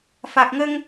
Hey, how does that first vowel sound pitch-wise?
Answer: low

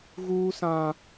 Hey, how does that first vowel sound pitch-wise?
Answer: high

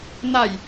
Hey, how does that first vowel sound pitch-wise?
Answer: low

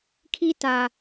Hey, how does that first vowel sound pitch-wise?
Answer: high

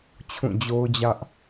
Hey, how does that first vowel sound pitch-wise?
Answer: falling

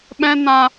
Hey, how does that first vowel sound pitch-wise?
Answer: high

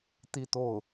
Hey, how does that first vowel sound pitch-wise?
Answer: falling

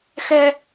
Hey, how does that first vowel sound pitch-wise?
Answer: high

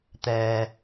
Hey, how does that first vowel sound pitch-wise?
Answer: low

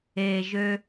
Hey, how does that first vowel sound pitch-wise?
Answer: low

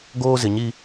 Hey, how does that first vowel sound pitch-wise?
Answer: high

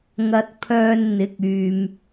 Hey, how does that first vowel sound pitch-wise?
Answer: low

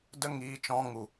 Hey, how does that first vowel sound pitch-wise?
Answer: high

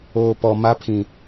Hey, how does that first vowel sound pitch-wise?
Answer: low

